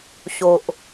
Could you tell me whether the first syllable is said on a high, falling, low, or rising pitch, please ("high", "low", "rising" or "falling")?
low